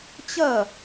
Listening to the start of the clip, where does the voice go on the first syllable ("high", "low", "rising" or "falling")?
falling